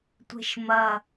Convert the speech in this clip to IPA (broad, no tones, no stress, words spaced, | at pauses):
tʷe̤ʃmɐ